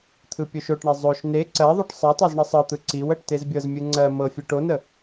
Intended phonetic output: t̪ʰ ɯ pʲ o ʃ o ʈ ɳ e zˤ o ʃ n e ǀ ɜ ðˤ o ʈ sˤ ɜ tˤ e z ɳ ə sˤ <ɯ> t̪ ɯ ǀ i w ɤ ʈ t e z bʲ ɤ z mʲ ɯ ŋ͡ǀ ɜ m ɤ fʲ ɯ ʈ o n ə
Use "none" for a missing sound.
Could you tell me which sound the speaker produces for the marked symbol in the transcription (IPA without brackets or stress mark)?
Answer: ɤ